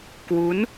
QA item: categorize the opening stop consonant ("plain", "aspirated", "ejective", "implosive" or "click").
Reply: plain